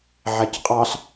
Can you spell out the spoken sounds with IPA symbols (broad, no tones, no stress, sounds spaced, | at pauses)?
ʕ æ c qʼ ɑ ɬ